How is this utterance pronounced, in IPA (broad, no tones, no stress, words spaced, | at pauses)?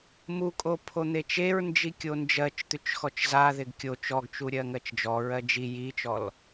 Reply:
mukʼo pʰon̪et͡ʃeɹnd͡ʒi kʲond͡ʒɜt͡ʃt̪ʉt͡ʃ xɔt͡ʃzaðɪɡ kʲo t͡ʃɔɡt͡ʃu ɾʲɜŋɜt͡ʃd͡ʒɔɹɜ d͡ʒi jit͡ʃɔl